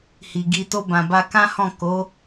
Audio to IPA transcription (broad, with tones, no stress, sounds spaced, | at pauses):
h i˨ ɡ i˧ t o˧ b ã˨ b a˧ k ã˦ h ɔ̃˦˨ k o˨˦